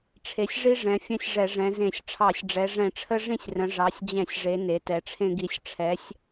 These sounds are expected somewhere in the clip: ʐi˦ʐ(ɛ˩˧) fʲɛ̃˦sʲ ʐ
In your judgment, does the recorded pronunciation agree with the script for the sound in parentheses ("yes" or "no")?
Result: no